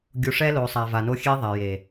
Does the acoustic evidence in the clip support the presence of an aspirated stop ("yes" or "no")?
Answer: no